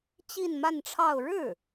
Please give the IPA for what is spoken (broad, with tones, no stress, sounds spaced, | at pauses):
t͡ɕ i˥˧ n m a˥˧ n ʈ͡ʂʰ ɑ˥˧ ʊ̯ ɻ ɻ̩˥˩